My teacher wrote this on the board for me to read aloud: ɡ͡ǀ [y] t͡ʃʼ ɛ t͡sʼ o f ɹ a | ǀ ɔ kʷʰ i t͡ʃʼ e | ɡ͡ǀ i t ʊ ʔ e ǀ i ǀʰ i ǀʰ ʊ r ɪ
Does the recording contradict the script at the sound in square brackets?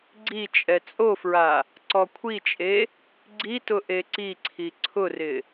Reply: yes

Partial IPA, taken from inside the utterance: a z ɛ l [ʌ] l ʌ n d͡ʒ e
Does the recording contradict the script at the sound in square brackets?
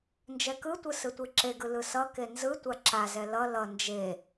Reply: no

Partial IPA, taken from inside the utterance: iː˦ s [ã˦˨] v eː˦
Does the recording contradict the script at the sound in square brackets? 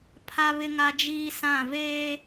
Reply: no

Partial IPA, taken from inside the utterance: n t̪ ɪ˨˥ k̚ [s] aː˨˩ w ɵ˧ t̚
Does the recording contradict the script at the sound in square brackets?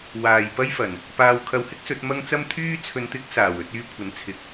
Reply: no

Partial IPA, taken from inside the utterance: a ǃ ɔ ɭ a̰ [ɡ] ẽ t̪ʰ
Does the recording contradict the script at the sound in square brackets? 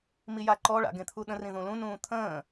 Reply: no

